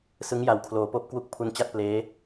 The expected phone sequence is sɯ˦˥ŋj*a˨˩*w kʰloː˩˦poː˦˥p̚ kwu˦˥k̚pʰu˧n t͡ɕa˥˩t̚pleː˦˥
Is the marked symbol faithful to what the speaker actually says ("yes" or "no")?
yes